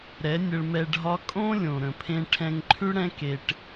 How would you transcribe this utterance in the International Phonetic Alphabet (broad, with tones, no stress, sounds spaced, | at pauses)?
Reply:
ɾ ɛ˨˦ nʲ ə˧ ɭ m ɛ˧ ɖʱ ɒ˦ kʼ õ˦ lʲ õ˨ ɾ ə̃˨ pʰ ẽ˧ ʈʰ ɛ̃˧ ŋ ǃʰ ʉ˦ ɽ ɛ̃˦ k e˧ ʈ